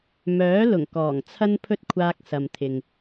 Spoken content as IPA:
m œː˨˥ l ʊ˨˩ ŋ k ɔː˨˩ ŋ t͡sʰ ɐ˥ n pʰ ɵ˥ t̚ kʷʰ aː˧ k̚ s ɐ˨ m t̪ʰ ɪ˨ ŋ

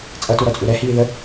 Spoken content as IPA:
t͡sʼ ʌ t u ɾ ɔ t͡sʼ u ɾ ɛ h iː ð ə

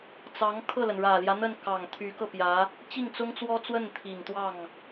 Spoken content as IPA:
t͡s ɑ˧˥ ŋ kʰ ɤ˥˩ l ə˩ n ɻ ä˨˩ l j ä˦ n̪ ə˥˩ n k ɑ˨˩ ŋ t̪ʰ y˧˥ k ɤ˧ p j ä˧˥ | t͡ɕ i˥˩ ŋ t͡s ʊ˥ ŋ t͡s w ɔ˥ t͡s w ə˥˩ n t̪ʰ i˨˩ ŋ t̪ w ɑ˥˩ ŋ

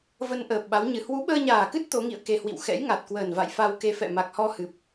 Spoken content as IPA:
v ə˧ n ʔ əː˨˩ p̚ ɓ a˨˦ w ɲ ɨ˨˩ h w u˨˦ ɓ əː˧ ɲ aː˨˩ k ɨ˦˥ t̚ t̪ o˨˦ ŋ ḭ˧˨ ə̯ k e˧ h w ḭ˧˨ w x ɛ̰˧˥ j ŋ a˨˩ t̚ k w əː˨˩ n v a̰˧˨ j f a˧ w k e˧ f ɛ̰˧˨ m a˨˩ k̚ h ɔ˧ h ɨ˨˩ p̚

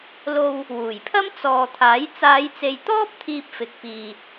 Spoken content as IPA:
l o˧ w | w uː˨˩ j pʰ ɐ˥ m t͡s ɔː˨ t̪ʰ aː˨˥ j t͡s aː˨˧ j t͡s e˨ j t̪ ɔː˥ p̚ t̪ʰ iː˧ p̚ f ɪ˨ k̚ p iː˨

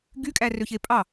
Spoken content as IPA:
ɡ y kʼ æ r ø ç e pʼ ɑ

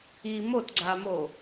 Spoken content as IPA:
i m o t ɡ͡ǀ a m o

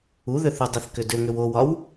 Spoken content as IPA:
u ð ʏ θ u dˤ i θ k ʏ d ʏ ŋ ʏ w o w ɒ w

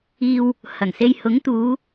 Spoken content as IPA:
iː˨ w | h ɐ˨˩ ŋ s e˧ j h ʊ˨˥ ŋ t̪ uː˨˧

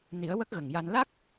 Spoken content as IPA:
n i˨˩˦ ə̯ w ə˦˥ k̚ ɣ ə˨˩ ŋ j a˧ n l a˦˥ k̚

